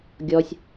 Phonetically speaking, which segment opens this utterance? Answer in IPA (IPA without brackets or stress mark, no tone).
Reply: ɡʲ